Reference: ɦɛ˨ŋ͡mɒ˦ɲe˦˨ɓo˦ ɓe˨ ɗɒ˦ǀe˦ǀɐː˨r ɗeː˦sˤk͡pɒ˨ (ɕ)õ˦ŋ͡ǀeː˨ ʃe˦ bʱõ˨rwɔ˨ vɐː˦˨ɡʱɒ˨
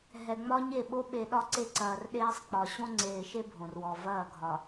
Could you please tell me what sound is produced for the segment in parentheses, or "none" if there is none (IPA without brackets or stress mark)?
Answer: ɕ